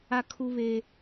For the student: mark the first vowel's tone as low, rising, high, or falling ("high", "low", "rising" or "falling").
high